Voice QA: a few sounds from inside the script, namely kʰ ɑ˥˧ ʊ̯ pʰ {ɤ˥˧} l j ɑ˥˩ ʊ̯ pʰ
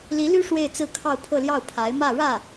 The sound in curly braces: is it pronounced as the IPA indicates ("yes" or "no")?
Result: yes